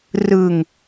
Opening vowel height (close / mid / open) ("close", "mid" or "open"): close